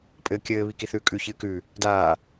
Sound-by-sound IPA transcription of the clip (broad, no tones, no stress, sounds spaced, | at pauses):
pʼ ɘː kʲ ɘː β i k i θ ʉː kʼ ʉ ç ɨː k ʉ | d aː